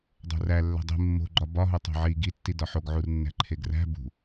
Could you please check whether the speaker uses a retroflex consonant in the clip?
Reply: no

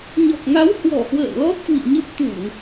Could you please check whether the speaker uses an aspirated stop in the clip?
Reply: no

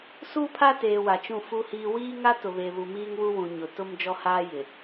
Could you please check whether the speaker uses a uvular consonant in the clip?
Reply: no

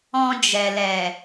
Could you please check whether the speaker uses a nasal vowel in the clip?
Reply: yes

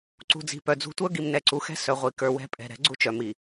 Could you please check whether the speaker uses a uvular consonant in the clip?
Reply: yes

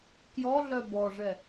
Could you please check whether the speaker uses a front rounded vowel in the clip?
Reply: yes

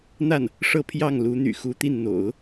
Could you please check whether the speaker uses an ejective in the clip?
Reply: no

